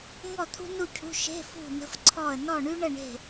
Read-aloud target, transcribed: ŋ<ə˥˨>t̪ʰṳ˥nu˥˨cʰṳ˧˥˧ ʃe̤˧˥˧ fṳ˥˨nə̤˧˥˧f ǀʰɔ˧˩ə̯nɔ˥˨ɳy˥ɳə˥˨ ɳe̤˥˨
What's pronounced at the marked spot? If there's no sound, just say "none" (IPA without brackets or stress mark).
ɔ˥˨